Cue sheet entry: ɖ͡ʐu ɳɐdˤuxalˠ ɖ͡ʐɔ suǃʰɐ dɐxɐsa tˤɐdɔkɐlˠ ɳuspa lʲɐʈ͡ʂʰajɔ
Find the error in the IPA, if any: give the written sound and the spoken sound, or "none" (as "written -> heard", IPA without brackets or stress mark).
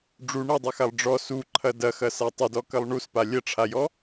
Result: none